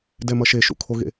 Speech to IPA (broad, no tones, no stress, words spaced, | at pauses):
dɛmʌʃe ʃṵkʰoɣḛ